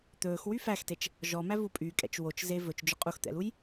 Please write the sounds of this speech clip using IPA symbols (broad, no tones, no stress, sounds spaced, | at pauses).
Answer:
t̪ ɵː x w y f æ x t e t͡ʃ | ʒ ɔ m æ v u pʼ y kʼ ɛ̰ t͡ʃ w o t͡ʃ z e v ɵ t͡ʃ d͡ʒ ɵ qʼ u x t̪ ɛ̰ l u j